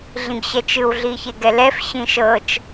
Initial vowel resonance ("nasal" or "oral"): nasal